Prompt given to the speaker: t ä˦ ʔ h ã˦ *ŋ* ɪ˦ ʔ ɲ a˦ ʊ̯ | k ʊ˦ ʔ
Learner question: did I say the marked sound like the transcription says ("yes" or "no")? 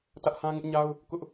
yes